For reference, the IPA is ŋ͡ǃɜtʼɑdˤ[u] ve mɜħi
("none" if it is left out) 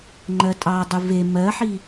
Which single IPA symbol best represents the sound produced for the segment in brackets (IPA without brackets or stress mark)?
u